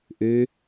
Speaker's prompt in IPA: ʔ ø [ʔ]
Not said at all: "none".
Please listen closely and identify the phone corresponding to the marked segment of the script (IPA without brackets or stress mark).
none